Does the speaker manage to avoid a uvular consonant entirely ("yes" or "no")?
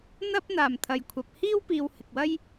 yes